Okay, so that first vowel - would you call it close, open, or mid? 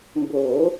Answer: mid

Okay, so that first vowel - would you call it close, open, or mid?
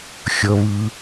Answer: mid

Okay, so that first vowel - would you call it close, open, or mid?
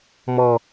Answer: mid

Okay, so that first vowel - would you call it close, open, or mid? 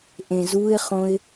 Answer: mid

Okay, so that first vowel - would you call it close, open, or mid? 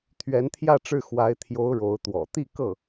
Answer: mid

